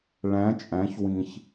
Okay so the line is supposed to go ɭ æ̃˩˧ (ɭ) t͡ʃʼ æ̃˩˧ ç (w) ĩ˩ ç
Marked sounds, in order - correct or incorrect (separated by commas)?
incorrect, correct